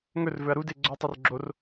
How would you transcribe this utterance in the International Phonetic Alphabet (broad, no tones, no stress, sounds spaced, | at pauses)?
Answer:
ŋ ɵ r v ɵ ɐ̯ ɾ u d e ɡ͡ǀ o tˤ ʉ r ɡ͡ǁ o r